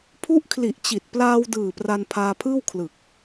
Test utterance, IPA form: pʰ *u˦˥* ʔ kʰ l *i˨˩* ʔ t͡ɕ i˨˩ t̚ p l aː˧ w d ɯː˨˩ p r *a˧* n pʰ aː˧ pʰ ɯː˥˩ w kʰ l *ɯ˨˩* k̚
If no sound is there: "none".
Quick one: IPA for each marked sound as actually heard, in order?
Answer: u˦˥, i˨˩, a˧, ɯ˨˩

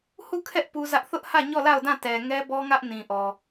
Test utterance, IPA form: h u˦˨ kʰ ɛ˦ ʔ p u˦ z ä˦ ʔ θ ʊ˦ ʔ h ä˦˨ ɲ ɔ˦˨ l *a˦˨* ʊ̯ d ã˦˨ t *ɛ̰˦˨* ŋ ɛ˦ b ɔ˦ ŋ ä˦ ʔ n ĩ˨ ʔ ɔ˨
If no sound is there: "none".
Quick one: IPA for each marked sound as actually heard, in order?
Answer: a˦˨, ɛ˨

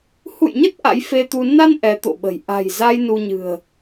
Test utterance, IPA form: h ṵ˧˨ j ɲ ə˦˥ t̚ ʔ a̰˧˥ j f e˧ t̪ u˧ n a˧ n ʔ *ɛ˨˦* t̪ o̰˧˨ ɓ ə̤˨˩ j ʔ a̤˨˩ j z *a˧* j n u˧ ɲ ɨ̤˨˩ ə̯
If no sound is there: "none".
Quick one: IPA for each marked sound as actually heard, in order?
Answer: ɛ˨˦, a˧

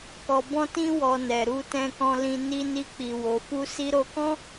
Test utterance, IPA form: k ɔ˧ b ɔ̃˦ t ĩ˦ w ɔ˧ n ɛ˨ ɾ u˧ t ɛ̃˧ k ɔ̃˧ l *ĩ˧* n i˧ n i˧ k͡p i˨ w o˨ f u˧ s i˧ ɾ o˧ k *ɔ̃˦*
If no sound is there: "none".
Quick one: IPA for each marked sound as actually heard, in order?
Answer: ĩ˧, ɔ̃˦

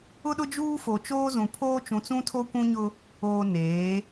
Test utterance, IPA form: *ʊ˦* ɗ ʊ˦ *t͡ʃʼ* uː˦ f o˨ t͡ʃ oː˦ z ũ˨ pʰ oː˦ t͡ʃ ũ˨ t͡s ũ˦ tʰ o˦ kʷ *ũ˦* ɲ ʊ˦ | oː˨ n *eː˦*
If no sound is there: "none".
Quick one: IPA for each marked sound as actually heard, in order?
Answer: ʊ˦, d͡ʒ, ũ˦, eː˨˦

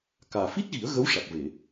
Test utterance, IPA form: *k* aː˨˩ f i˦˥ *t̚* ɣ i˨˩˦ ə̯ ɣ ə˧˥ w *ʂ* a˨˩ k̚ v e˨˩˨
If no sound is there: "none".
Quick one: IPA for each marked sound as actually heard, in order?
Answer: k, t̚, ʂ

